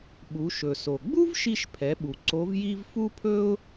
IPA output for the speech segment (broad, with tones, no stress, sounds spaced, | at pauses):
ɓ u˩˧ ʃ ɵ˩ s o˩ ɡ͡b u˥ v ʃ i˧ ʃ pʰ ɛ˩˧ ɓ u˩ ǀ o˧˥ v j i˥ v f u˥ pʰ ɵ˥ ʊ̯